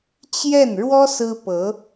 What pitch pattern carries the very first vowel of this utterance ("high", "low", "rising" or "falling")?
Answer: falling